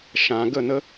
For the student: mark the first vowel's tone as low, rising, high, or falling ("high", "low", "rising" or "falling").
low